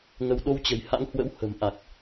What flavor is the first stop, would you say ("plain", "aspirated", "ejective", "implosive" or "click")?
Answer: implosive